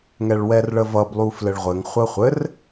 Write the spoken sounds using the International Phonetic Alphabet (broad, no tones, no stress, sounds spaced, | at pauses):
ŋ ɛ ɭ w ɛ r ɭ ə v ʌ b lˠ u f l ɘ ɭ ʁʷ ɘ ŋ χʷ ə χʷ ɘ r